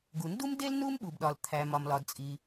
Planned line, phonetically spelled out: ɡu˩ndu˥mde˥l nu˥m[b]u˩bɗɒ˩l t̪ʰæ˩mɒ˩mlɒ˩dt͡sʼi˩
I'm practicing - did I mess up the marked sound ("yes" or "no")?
yes